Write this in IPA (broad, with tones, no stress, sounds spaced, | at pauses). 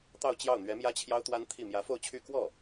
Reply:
t̪ ɑ˥˧ ʊ̯ t͡ɕ j ɑ˥˩ ʊ̯ n̪ ɥ ɛ˧˥ m j ä˥ t͡ɕʰ j ɑ˥ ʊ̯ t̪ w a˥ n t̪ʰ i˥˩ m j ä˧˥ f o˥˧ ʊ̯ t͡ɕʰ y˥˧ k w ɔ˥˩